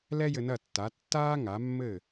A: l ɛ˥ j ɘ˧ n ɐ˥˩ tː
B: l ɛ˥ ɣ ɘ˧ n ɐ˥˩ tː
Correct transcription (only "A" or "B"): A